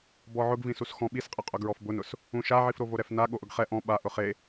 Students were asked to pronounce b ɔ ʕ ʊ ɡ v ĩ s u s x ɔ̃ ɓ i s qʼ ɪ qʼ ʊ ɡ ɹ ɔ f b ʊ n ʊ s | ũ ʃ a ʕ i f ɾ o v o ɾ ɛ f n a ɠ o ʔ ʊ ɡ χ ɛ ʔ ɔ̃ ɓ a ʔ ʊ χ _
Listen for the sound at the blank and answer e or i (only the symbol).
e